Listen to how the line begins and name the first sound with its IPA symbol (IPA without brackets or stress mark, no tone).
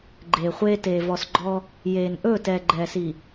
ɡ͡ǃ